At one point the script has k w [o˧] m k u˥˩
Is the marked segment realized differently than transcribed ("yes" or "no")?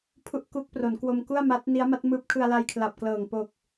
no